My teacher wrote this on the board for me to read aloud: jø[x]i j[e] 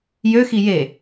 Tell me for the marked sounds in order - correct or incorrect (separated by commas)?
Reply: correct, correct